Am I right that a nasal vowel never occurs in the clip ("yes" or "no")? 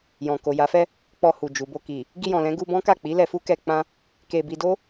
no